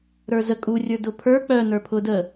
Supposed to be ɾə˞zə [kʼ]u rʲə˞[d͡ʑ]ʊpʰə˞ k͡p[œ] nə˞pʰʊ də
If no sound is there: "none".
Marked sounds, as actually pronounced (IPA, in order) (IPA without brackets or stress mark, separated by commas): kʼ, d, œ